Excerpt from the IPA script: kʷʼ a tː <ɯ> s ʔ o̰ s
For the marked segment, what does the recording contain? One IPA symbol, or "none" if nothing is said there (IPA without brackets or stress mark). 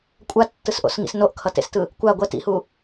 ɯ